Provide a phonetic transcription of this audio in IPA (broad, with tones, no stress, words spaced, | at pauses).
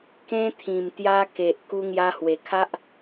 kẽ˧t̪ʰĩ˨˩m t̪ja˧ke˨ʔ ku˧ŋja˧hwe˨˩kʰa˦ʔ